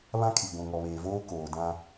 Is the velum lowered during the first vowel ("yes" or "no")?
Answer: yes